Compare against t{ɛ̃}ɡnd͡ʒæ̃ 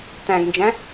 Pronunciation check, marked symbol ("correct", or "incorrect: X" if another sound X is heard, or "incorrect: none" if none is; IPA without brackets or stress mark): incorrect: æ̃